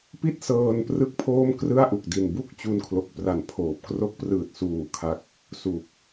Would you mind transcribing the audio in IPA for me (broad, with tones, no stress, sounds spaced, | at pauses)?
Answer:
p i˥˩ t̚ s ɤː˧ n p r ɯ˥˩ k̚ pʰ oː˥˩ m k r ɯ˥˩ a̯ ʔ u˨˩ k̚ d i˨˩ n b u˥˩ k̚ t͡ɕ u˧ n kʰ l o˨˩ k̚ p r a˨˩ n pʰ oː˨˩ p̚ k r o˦˥ k̚ p r ɯː˨˩ t̚ s uː˨˩ kʰ a˦˥ k̚ | s u˨˩ k̚